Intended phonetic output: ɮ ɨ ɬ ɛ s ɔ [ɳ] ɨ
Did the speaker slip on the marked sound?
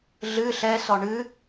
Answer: no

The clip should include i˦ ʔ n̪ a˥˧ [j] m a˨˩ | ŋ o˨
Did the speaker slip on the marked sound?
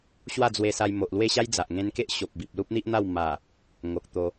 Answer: yes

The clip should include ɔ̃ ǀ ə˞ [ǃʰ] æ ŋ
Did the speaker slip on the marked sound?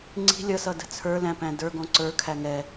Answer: yes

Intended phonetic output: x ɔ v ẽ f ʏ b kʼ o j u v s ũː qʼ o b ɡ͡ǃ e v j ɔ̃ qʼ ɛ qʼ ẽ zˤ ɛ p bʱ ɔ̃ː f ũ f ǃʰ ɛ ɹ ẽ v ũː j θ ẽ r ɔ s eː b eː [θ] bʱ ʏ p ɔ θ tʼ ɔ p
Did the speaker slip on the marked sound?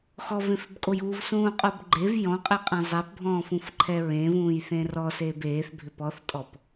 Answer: no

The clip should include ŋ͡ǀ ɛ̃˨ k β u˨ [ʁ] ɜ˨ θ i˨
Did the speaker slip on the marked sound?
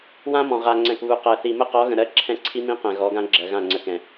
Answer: yes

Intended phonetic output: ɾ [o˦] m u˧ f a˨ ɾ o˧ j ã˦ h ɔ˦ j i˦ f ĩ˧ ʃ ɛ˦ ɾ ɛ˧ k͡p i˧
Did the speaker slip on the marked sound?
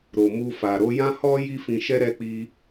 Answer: yes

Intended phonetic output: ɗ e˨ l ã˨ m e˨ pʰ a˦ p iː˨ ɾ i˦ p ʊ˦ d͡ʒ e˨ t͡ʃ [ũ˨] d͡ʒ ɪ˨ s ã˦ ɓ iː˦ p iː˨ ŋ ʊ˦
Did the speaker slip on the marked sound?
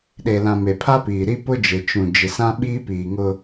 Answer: no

